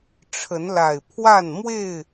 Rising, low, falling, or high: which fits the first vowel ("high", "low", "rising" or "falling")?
rising